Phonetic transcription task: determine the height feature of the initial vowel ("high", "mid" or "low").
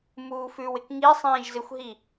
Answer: high